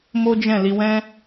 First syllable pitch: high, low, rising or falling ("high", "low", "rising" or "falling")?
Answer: high